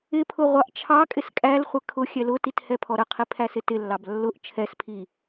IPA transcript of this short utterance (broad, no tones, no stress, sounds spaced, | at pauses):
ɪ pʰ ʊ ʁʷ ɑ ʔ t͡ʃʰ ɑ kʼ ɪ s kʼ æ l χʷ ɪ kʰ ʊ xʲ ɛ l ʊ t i t h ɛ pʰ ɔ ɾ ə qʰ i pʰ æ s ɪ t ɪ lː ɑ b lː ʊ ʔ t͡ʃʰ ɛ s pʰ i